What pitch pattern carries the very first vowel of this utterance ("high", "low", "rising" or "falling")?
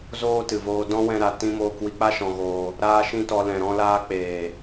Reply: high